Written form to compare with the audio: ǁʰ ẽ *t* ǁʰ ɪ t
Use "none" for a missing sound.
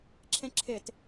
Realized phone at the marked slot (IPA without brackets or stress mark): none